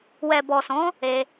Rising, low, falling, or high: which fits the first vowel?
low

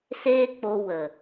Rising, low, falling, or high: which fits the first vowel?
high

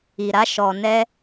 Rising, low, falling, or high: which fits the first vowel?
low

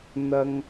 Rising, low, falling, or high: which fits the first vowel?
low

